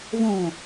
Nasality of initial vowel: nasal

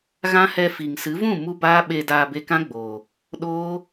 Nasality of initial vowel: nasal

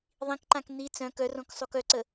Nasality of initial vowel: nasal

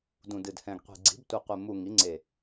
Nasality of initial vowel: nasal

